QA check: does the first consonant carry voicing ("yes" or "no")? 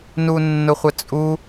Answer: yes